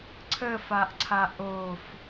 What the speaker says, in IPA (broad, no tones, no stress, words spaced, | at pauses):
ǀʰəfaʔǀʰa ʔof